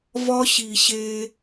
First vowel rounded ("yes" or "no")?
yes